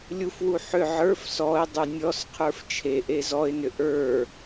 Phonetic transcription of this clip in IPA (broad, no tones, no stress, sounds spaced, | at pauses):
lʲ u f w u ħ ʏ ʕ ə˞ f s ɔ ɪ̯ dˤ u nʲ ɔ s qʰ ə˞ f t͡ʃʰ e ʔ e z ɔ ɪ̯ n ʏ ʔ ə˞